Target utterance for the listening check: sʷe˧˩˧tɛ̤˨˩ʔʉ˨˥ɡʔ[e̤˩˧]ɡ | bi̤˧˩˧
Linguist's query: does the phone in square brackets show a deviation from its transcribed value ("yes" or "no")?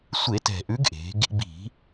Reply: no